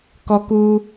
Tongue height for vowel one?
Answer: mid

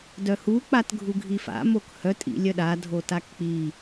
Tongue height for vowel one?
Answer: mid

